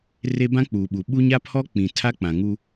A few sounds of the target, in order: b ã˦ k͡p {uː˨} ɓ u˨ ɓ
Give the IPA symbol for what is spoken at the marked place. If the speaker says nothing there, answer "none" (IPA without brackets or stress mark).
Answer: uː˨